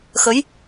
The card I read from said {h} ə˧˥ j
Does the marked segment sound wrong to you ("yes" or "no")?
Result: yes